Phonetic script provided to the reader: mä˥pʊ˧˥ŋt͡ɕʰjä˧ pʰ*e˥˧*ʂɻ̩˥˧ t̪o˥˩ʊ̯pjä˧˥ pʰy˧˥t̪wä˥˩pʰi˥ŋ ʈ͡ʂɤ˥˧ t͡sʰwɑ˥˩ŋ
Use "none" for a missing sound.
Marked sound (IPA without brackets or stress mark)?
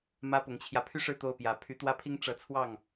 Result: y˥˧